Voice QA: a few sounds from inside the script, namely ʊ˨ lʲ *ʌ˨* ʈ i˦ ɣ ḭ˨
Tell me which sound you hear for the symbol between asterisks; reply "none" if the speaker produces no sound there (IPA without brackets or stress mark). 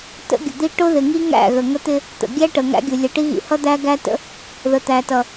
ʌ˨